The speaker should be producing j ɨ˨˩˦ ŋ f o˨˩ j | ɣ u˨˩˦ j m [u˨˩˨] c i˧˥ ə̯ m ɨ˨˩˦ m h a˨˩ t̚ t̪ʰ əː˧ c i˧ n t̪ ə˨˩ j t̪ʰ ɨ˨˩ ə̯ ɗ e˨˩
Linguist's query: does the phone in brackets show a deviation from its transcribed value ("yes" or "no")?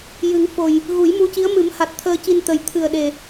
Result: yes